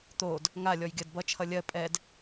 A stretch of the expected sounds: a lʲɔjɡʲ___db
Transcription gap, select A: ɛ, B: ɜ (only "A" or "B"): B